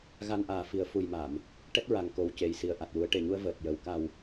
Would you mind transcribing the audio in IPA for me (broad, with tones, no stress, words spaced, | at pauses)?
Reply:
ɣa˧nʔaː˨˩ fi˨˩˦ə̯fu˨˩jma˨˩˨m | ʈɛ˦˥t̚ɹa˨˩ŋko˨˩w ce˨˩jsi˨˩ə̯ ʔa˨˩t̚wu˨˩˦ə̯ʈe˨˩ɲu˧ə̯ vəː˨˩t̚jə˨˩w ka˨˩w